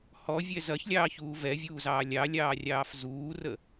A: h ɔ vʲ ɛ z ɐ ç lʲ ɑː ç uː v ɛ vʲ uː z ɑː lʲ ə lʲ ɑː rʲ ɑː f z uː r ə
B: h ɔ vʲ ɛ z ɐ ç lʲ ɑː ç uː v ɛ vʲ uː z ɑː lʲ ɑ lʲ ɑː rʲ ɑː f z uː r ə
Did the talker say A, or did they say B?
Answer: B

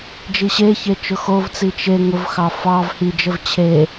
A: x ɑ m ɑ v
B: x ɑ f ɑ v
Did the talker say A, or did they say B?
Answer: B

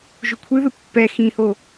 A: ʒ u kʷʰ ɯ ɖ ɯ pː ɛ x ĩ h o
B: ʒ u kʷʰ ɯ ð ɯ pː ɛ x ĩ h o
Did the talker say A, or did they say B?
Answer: B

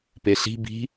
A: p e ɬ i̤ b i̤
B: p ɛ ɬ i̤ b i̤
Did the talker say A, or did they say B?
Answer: A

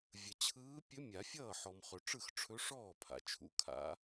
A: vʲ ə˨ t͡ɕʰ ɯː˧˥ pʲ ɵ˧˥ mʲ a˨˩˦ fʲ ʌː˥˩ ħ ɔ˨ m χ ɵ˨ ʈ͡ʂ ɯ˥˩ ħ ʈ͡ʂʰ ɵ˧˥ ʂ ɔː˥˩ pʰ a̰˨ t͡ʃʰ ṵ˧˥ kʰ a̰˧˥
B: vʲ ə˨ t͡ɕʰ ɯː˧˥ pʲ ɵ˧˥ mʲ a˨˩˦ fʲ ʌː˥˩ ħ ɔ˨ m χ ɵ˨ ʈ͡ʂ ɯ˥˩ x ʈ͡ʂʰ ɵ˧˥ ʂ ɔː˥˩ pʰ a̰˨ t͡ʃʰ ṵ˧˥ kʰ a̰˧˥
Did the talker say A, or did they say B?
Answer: B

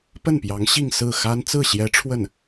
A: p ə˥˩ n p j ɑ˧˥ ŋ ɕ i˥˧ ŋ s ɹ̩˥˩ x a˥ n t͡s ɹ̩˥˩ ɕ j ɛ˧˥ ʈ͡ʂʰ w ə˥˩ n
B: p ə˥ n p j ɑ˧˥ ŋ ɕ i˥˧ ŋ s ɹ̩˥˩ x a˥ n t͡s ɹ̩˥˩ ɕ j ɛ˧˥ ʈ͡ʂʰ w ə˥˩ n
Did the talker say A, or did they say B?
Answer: A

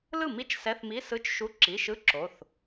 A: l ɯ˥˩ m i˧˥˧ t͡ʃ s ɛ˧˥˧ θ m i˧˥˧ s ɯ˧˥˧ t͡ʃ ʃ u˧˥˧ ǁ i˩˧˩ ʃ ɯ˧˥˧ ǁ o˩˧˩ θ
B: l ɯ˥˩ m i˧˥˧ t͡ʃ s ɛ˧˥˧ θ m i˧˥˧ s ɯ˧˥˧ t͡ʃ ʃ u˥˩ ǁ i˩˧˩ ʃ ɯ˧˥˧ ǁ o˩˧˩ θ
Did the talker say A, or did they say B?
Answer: A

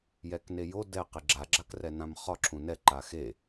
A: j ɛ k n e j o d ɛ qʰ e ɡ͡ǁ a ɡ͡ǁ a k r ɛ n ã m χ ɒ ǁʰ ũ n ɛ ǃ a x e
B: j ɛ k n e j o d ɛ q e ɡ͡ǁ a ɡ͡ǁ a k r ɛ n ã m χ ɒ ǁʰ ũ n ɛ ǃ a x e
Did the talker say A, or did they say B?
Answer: B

